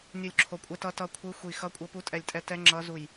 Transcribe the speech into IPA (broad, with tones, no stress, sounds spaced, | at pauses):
nʲ u˦˨ lʲ ǁʰ o˦˨ kʷʼ ɛ˦˥ t ʌ˦˥ t ʌ˦˥ kʷʰ ɯ˦˥ xʷ i˦˨ x ʌ˦˥ kʷʼ ʌ˦˥ p u˦˥ tʼ ɛ˦˨ lʲ tʼ ɛ˦˥ t ɛ˦˥ ŋ͡ǁ ʌ˦˥ z u˦˨ j